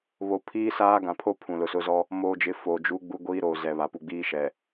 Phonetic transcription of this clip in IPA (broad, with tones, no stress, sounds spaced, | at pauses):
β o˨ pʰ iː˦ s aː˦ ɡ ã˨ pʰ o˦ pʰ ũ˨ l ʊ˨ s ʊ˦ z ɔ˦ | m oː˨ d͡ʒ ɪ˨˦ f o˨ d͡ʒ u˦ ɡ͡b u˦ ɡʷ iː˦ ɾ oː˨ z ɛ˨ β a˨ p u˨ ɡ͡b iː˦ ʃ ɛ˨